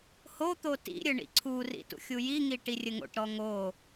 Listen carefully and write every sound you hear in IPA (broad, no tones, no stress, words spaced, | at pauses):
hot̪o tḭɾʲɘ ɳḭǀʰurḭ tṵxʲujiŋi ʈirʲɘŋo̰ʈɾɔ ŋo